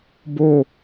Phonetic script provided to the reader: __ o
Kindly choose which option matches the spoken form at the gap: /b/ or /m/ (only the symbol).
b